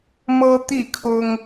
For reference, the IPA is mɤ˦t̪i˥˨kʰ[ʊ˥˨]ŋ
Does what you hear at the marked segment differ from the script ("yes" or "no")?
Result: yes